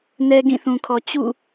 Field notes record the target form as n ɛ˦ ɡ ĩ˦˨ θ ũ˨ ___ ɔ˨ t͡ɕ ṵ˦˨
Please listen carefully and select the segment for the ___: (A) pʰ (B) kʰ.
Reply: B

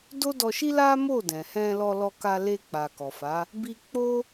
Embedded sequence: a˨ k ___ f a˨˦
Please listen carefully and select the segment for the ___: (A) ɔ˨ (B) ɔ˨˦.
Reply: A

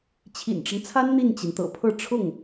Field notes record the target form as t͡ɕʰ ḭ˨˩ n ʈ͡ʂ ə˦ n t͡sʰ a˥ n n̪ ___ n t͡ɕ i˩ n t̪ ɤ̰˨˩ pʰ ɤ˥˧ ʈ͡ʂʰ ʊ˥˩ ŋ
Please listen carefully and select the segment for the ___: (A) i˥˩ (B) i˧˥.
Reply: A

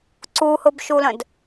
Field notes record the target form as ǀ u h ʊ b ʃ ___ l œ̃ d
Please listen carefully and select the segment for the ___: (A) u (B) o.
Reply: A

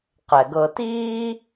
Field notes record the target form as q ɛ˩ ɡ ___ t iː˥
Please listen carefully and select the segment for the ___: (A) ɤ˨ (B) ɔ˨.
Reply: A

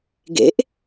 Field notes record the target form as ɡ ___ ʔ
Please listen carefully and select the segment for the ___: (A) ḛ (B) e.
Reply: A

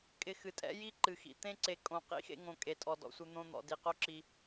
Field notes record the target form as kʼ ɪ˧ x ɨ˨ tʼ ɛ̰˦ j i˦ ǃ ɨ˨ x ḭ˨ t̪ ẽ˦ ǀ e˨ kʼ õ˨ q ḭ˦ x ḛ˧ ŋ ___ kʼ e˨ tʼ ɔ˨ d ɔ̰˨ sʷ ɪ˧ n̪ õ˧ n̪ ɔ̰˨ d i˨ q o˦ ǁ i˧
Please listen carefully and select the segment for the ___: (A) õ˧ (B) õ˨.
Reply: B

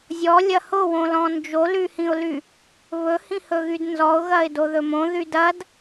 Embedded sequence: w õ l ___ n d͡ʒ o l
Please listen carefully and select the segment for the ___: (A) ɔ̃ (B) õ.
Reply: A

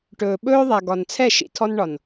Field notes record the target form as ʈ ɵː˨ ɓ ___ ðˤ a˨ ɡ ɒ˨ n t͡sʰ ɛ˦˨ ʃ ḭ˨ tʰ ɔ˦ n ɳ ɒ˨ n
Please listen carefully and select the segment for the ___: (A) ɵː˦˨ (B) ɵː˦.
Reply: B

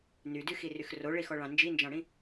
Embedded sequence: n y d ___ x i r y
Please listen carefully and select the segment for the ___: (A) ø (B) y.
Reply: B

